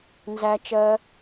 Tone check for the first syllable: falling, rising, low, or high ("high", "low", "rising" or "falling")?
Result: high